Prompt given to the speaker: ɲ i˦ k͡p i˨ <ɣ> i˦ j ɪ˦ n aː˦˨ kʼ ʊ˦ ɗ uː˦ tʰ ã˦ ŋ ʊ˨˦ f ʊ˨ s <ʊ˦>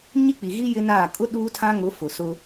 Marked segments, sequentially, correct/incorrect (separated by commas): correct, correct